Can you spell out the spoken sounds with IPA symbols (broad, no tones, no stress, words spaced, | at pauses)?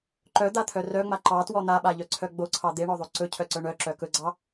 ǃœd̪at̪ʰœ rœŋ͡ma ǃɑtwɔ n̪aɓaʎœǀʰœ ɡ͡boǀʰɑ d̪eɳɔðˤo ǀɵcʰœǀœ ɳœǁœ kɵɡ͡ǀɑ